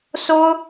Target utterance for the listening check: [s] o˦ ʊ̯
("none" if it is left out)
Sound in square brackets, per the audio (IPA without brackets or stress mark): s